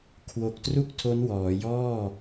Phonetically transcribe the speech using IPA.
kʰ w o˨˩ k̚ t r u˥˩ k̚ tʰ o˦˥ n w ɔː˩˦ j ɔː˥˩

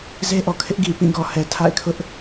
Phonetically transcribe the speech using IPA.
z e˦ ʔ ɔ˨ kʰ ɪ˦ ʔ ɡ i˨ p ĩ˦˨ ɡ ɔ˨ h ɛ˨ tʰ a̰˦˨ ɪ̯ kʰ ʊ˦ ʔ

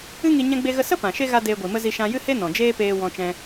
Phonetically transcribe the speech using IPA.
ɨ˦ ŋ i˧ ɲ ɛ̃˦ ɡ͡b e˦ ɣ ə˦ s ə˦ p ã˨ ʃ e˦ ɣ a˦ d eː˧ ɡʷ i˨ m ə˦ z i˧ ʃ ã˧ j ɨ˦ h e˦ n ɔ̃˨ d͡ʒ eː˦ p eː˧ w ɔ̃˧ t͡ʃ ɛ̃˧

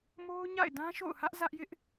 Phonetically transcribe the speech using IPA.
m o˦ ʊ̯ ɲ a̰˦˨ ɪ̯ d ã˦ ʃ o̰˦˨ ʊ̯ h ä˦ ʔ z ä˦ ʔ j ɪ˦ ʔ

